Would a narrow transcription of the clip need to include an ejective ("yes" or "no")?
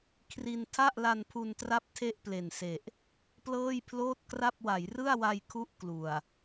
no